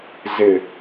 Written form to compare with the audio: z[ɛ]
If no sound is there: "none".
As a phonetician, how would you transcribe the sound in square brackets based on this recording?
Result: ɪ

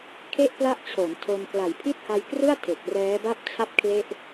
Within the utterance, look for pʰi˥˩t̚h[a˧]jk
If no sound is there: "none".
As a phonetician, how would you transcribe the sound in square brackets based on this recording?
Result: a˧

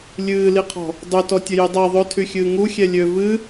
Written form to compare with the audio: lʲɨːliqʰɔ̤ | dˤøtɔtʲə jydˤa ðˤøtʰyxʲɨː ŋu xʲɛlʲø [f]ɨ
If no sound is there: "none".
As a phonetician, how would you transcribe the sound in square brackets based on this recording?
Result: v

